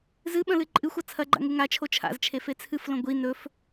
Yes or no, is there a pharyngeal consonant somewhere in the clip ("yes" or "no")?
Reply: no